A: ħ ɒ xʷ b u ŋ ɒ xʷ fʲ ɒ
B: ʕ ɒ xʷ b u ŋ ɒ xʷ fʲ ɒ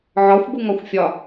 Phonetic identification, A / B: B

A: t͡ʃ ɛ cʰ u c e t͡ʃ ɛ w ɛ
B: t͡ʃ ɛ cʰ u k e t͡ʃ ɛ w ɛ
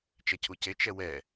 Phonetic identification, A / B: A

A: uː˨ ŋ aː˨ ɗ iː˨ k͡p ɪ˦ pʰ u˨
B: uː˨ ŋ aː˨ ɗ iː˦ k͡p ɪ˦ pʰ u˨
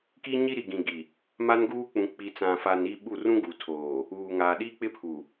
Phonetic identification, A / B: B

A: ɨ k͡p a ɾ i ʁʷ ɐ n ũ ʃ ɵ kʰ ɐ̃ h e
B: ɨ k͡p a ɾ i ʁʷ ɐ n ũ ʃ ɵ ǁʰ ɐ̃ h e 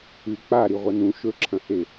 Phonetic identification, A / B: B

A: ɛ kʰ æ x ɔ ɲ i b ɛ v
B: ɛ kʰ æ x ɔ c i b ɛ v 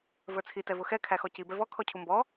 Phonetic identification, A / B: B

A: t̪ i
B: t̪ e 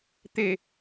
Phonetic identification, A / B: B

